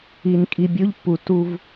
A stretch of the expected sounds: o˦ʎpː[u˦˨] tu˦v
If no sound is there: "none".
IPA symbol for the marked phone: u˨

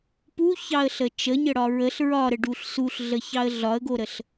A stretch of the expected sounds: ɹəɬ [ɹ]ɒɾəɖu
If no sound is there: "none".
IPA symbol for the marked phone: ɹ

